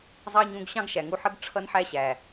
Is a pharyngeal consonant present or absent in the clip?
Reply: present